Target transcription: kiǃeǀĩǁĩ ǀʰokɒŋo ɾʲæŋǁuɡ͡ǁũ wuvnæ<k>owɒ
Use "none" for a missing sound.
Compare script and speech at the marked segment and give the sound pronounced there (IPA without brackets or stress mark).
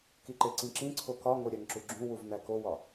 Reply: k